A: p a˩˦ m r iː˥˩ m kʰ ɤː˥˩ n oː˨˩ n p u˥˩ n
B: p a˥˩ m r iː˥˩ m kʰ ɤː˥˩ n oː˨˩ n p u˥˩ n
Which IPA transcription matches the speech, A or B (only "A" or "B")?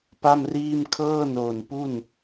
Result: B